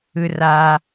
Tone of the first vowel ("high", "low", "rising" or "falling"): high